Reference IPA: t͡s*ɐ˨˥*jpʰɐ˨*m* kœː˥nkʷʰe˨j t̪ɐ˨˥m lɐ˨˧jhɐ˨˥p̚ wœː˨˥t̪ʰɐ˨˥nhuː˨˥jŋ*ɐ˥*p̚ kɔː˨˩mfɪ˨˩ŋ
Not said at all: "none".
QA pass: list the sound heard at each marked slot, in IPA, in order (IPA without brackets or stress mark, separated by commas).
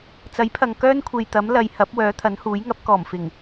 ɐ˨˥, ŋ, ɐ˨˥